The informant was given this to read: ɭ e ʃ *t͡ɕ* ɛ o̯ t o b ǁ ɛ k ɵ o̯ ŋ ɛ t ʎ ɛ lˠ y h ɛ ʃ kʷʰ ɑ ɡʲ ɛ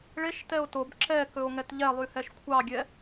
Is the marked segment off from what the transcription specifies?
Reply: yes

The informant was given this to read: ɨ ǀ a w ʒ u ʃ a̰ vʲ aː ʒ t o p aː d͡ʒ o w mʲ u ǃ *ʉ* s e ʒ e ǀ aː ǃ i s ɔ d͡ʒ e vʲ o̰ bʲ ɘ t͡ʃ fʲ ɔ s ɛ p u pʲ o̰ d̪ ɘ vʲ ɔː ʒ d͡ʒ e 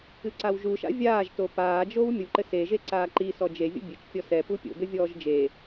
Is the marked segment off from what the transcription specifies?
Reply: yes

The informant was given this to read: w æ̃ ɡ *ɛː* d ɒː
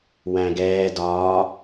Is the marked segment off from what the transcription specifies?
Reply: no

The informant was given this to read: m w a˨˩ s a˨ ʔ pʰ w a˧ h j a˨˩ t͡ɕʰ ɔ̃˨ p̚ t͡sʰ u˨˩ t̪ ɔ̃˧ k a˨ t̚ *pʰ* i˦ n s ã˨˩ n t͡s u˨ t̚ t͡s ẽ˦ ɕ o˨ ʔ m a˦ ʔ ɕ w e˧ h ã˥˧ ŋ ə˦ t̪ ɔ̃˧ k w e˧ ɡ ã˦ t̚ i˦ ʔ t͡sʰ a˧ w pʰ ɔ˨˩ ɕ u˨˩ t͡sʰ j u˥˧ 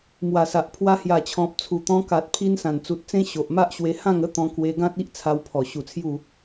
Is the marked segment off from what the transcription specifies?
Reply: no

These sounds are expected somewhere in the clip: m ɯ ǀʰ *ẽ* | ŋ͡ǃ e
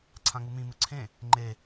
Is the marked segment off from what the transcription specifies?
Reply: no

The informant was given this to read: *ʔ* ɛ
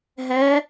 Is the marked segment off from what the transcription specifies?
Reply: yes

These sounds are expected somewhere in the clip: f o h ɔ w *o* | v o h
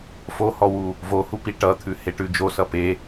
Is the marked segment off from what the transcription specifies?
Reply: yes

